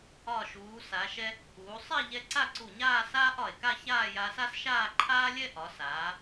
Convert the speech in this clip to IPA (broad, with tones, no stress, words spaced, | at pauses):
ɒ˧˩ʃuː˩˧ sa˩˧ʃɛ˧ | uː˩˧ sˤɛ˥˧ ʎɛ˧ǀa˥˧ǀu˧˩ɲaː˥˧ saː˥ʔɒ˧˩e̯ ka˥˧çaː˥˧ja˧sa˥s ʃaː˥˧ǃʰaː˥lʲɛ˥ ʔɒ˩˧saː˩˧